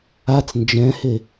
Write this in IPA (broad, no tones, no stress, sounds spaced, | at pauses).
a t͡s n d͡ʒ ɛ̃ h e